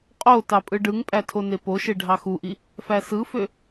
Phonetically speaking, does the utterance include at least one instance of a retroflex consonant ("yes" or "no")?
yes